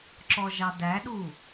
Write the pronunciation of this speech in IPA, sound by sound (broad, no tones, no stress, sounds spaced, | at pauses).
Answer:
ǁ ɔ ʒ ɑ d æ ɗ u